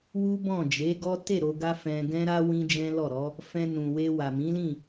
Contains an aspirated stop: no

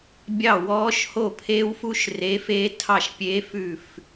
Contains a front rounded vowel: no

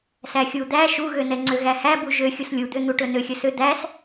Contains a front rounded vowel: yes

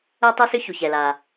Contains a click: no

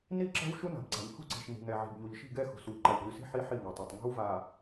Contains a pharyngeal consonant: yes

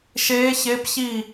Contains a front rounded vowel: no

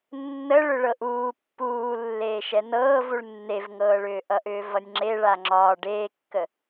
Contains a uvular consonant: no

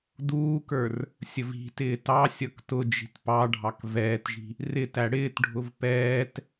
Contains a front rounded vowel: no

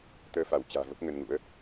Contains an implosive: no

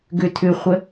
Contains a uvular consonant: yes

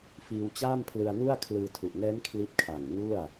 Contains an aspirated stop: yes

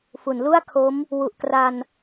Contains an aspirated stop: yes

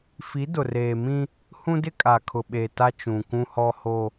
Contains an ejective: yes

